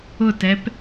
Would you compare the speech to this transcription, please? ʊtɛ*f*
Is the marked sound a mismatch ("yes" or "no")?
yes